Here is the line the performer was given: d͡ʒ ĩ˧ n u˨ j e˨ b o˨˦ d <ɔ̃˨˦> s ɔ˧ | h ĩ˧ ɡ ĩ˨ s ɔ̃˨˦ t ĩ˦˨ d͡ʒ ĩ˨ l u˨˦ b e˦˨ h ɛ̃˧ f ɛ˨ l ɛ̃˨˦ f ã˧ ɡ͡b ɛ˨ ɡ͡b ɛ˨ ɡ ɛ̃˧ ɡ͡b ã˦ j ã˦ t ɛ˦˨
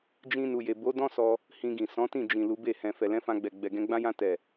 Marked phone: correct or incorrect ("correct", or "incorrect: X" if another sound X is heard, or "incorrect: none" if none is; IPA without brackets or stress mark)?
incorrect: ɔ̃˦